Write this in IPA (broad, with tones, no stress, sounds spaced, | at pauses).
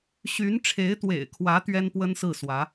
ɕ y˧˥ n ʈ͡ʂʰ e˧˥ ɪ̯ t̪ w ḛ˨˩ ɪ̯ kʰ w ä˧˥ t̪ ɥ ɛ˥ n p w ə˥ n s ɹ̩˥˩ s w ä˧˥